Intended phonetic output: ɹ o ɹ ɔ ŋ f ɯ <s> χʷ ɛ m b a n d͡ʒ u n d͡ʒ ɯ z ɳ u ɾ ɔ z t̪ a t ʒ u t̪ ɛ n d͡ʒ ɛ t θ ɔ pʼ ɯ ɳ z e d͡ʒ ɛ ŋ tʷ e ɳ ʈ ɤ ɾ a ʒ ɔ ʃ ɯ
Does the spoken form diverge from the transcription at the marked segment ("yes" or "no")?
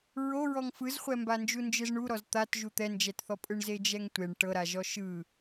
yes